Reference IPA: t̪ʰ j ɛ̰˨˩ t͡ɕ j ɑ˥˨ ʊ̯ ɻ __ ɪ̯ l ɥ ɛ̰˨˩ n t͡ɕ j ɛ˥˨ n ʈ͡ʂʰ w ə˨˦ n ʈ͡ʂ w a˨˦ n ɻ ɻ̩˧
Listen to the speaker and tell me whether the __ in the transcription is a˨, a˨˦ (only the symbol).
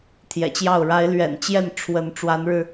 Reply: a˨˦